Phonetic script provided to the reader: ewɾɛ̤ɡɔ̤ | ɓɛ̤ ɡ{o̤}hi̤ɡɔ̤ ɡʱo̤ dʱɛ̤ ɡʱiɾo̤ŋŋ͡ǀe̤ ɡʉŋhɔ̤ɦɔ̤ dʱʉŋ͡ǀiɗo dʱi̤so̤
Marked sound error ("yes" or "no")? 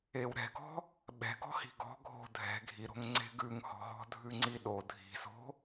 yes